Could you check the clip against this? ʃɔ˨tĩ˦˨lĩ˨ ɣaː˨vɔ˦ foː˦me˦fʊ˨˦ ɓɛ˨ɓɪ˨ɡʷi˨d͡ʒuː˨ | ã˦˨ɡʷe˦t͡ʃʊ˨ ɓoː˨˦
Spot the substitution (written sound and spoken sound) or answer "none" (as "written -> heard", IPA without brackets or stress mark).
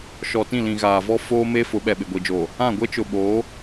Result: uː˨ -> oː˨